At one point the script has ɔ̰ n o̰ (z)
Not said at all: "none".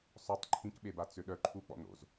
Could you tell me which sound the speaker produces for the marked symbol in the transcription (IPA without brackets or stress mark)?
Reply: z